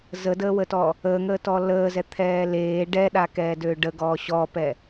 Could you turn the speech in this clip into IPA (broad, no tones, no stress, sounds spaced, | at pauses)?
z ə d əː w ə t ɔ | əː ŋ əː t ɔ l əː z ɛ t̪ʰ ɛː l eː ɖ ɛ ɗ a k ɛː d ø ɖ ə ɡ ɔː ɕ ɔ p ɛ